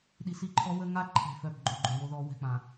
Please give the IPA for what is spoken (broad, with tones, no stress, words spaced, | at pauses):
ɗi˨si˦˨ǃʰɔ˦ wə˦ ŋa˦ǃʰɛ̤˨fœ˨b ɡ͡ǃo˨ɡ͡ǃø˨wo˦ðɔ˨˦ wɛ̤˨k͡pã˨